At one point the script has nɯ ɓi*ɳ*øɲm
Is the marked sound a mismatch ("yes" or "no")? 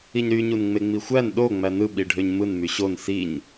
yes